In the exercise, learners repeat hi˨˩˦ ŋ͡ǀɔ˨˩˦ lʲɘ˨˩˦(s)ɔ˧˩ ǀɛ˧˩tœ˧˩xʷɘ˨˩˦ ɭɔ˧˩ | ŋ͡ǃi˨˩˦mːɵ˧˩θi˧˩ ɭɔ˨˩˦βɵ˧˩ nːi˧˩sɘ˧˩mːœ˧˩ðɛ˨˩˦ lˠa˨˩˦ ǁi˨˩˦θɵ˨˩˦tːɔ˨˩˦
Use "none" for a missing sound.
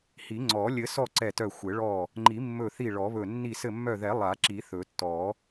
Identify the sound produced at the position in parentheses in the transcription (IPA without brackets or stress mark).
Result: s